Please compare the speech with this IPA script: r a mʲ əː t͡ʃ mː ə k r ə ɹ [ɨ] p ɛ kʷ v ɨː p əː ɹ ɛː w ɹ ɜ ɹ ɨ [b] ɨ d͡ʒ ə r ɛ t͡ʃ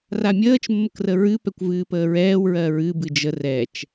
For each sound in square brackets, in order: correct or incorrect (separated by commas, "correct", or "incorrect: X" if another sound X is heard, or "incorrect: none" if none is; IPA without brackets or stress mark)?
correct, correct